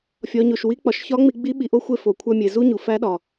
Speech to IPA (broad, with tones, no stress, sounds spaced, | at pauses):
fʲ ɒ˩˧ ɲ o˩ ʃ w i˧˥ k͡p ɒ˩ ʃ ç ɒ˧˥ ŋ͡m i˧ ɡ͡b i˧˥ ɓ i˩ ʔ o˧ xʷ e˧ f o˩ kʷʰ æ˧ mʲ e˩ z u˥ ɲ u˩ f æ˧˥ ɗ ɒ˩